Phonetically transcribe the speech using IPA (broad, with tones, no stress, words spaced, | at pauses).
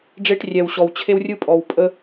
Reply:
ɖ͡ʐe˦ʈrʲɛ˨wɕɔ˨w t͡ɕʰe˦wrʲɯ˦pʼɔ˨w pʼə˦